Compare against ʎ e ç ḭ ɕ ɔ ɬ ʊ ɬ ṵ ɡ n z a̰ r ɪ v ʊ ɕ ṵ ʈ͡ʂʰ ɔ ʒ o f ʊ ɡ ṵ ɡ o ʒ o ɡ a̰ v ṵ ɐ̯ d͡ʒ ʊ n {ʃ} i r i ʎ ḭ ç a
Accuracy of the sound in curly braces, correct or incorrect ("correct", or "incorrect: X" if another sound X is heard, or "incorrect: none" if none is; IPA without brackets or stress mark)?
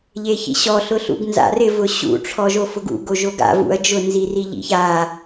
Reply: incorrect: z